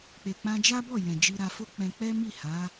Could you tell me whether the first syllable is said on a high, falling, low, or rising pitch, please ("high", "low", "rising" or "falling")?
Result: low